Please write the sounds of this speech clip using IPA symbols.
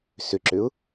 s ʏ ǁ ʏ ʊ̯

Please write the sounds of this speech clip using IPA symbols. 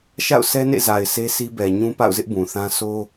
ʃ a̰˦˨ ʊ̯ s ɛ˦ n ḛ˦˨ z a˨ ɪ̯ s e˦ s i˦ b ɛ˨ ɲ ũ˦ p a̰˦˨ ʊ̯ z ɪ˦ ʔ b ũ˨ θ ã˦ s o˦

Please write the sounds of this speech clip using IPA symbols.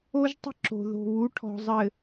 o˦ ʒ tˤ ə̤˦ ǁ o̤˨ ð o̤˨ β u˨˦ ʈʰ ɔ̤˨ zˤ ɘ˨

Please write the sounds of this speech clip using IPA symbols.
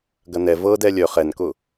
ɡ ɐ n ɛ v ɤ d ɛ lʲ œ χ ɛ n k ʊ

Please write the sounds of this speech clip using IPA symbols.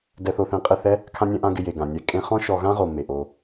d ɛ˧ θ o˧ θ ẽ˧ qʼ ɪ˦˨ θ ɛ˦ | kʰ ã˧ nʲ ɛ̃˧ ʔ ã˧ ɡ ɪ˧ j e˨ ɡ ã˨ nʲ ɛ˧ kʼ ẽ˧ χ ɔ̃˦ ʃ ɔ˧ ɣ ã˦ ʁ o˨ m e˨ ʔ o˧

